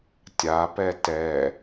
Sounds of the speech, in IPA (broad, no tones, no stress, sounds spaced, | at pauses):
tʲ a p ɛ t ɛ